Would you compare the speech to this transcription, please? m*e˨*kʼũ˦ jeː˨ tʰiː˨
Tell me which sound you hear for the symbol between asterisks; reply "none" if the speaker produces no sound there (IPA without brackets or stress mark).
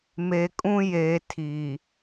e˨